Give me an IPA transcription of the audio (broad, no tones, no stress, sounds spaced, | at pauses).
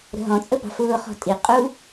ɾ ə̤ ɦ ɔ̃ t͡sʼ ə b ɑ̤ f ʊː χ ɔ̤ tʼ i qʼ u